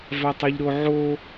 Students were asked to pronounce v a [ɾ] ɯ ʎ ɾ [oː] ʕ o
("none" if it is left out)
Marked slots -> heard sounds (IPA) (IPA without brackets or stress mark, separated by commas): tˤ, o